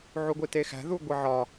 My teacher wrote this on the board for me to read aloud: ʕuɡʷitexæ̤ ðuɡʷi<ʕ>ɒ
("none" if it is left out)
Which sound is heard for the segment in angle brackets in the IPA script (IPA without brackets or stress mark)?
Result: ʕ